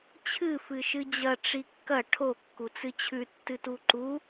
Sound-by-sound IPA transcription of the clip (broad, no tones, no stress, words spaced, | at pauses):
t͡ɕʰɨ fɨʃɨd͡ʑɐ ʈ͡ʂikːɐ ʈʰo kːut͡sɨt͡ɕʰʉ tːɨtuǃu